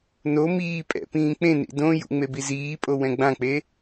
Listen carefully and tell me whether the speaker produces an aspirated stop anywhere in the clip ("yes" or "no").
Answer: no